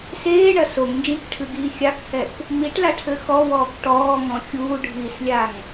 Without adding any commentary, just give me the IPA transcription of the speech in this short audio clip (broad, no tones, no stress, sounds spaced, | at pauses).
s eː ɳ ɐ s o ŋ n d͡ʒ ĩ k ʈʰ ɨ ɡ iː xʲ a k h ɛ k | m i ʈ l a ʈʰ ɘ x ɔ w ɔː k ʈ ɔː ŋ ɔ̃ xʲ uː ɖʱ iː s lʲ a ŋ